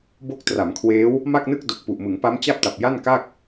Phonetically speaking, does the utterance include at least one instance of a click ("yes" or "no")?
no